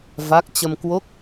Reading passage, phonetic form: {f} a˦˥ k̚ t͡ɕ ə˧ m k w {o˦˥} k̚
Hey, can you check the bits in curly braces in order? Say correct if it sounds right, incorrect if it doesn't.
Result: incorrect: v, correct

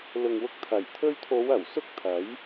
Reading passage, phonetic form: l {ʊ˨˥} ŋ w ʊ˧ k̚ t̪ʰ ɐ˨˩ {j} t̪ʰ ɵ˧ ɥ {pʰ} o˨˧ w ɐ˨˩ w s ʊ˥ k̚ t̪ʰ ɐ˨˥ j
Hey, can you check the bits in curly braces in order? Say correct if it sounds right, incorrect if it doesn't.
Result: incorrect: ʊ˨, correct, incorrect: t̪ʰ

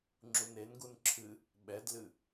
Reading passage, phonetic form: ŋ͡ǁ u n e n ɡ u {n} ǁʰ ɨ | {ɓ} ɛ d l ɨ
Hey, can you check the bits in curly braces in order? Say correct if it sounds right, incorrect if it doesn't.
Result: correct, correct

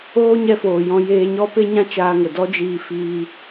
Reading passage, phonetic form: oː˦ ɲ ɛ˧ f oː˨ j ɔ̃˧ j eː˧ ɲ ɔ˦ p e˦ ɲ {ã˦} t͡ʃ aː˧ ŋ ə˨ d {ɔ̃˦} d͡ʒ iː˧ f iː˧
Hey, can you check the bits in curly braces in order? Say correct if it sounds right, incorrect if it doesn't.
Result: correct, incorrect: ɔ˦

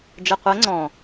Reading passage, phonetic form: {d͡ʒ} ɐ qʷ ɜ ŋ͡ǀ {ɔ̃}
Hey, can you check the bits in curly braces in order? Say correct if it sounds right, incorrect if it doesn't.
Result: correct, correct

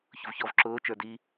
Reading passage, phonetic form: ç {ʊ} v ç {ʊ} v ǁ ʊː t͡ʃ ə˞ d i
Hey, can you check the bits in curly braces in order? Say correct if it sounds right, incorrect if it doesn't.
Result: correct, incorrect: ɔ

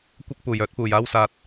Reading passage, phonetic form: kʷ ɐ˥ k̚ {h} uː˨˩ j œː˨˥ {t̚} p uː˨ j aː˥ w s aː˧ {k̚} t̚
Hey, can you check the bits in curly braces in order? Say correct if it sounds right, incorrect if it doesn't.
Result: incorrect: p, correct, incorrect: none

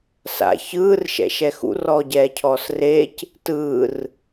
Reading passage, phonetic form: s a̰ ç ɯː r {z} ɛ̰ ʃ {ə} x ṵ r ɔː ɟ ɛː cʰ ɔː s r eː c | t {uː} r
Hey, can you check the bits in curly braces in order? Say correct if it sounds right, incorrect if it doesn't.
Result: incorrect: ʃ, incorrect: ɛ, incorrect: ɯː

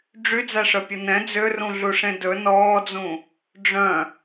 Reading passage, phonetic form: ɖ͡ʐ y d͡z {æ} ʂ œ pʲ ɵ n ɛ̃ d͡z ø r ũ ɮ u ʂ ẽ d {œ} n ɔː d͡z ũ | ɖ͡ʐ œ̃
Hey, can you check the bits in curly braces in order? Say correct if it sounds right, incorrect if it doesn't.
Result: correct, incorrect: ɵ

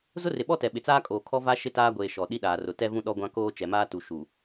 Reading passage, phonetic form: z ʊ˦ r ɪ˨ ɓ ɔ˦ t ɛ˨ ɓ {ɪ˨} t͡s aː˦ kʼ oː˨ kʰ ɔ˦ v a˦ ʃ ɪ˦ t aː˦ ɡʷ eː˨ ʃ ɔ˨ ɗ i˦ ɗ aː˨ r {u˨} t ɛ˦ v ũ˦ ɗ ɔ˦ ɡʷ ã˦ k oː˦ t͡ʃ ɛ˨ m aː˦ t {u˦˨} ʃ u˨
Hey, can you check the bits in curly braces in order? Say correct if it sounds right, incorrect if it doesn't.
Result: correct, incorrect: ʊ˨, incorrect: u˨

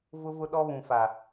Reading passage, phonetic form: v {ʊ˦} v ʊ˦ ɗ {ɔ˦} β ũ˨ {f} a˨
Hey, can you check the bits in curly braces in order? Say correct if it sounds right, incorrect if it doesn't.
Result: correct, correct, correct

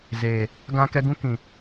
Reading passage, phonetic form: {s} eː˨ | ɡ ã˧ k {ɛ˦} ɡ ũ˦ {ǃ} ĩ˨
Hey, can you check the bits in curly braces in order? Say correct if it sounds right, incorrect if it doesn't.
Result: incorrect: z, incorrect: ɛ˧, incorrect: k

